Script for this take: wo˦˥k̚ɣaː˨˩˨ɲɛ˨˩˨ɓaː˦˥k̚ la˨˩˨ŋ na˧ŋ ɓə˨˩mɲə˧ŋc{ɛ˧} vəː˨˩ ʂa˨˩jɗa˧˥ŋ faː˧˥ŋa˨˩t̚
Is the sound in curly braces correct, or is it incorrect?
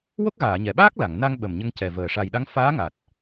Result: incorrect